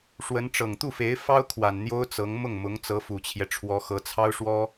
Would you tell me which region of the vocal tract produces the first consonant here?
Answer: retroflex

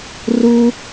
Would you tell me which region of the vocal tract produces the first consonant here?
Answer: tongue tip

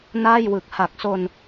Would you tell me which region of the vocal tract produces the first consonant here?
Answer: tongue tip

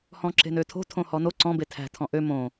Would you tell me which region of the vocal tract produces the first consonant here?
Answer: throat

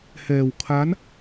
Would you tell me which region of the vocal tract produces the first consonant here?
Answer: throat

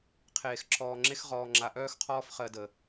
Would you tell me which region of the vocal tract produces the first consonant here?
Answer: uvula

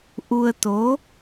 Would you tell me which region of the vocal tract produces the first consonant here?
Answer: throat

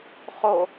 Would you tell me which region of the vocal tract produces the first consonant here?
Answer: uvula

